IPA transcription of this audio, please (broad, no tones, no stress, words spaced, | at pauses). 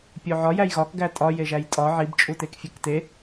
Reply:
pʲoʕɒ jæjɣɒk ɡætʼɒ jeʒæjtʼɒ ʕib t͡ʃʼutekfʲekte